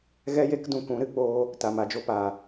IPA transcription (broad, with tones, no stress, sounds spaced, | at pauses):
ɣ ɛ˦ j e˦ k d ũ˧ k ũ˨˦ ɾ ɨ˧ k͡p oː˧ | t a˨ m a˨ d͡ʒ o˧ p aː˨